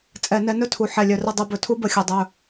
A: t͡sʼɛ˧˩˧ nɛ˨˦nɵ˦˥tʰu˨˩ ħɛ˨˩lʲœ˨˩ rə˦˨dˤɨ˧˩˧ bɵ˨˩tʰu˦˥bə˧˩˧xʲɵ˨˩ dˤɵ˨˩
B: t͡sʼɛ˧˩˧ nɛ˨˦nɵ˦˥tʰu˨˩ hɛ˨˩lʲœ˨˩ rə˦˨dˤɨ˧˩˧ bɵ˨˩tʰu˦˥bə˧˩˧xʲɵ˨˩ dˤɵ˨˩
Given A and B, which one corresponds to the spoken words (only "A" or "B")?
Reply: A